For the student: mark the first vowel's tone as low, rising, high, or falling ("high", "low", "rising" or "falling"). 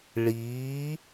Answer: rising